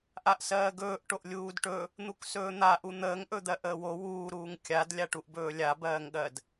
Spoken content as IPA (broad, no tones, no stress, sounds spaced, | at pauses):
ʔ a ʔ s ɜː ɡ ɵː ʔ ʈ o ʔ lʲ uː d ʈ ɵ | n̪ u k s ɵː n̪ a ʔ u n̪ əː ŋ ʔ ɵ d̪ ɜ ʔ əː w o w uː ɾ uː ŋ kʲ a d lʲ a ʈ u ʔ b ɵː lʲ a b ɜː ŋ ɠ ɜ d